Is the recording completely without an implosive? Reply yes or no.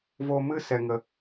yes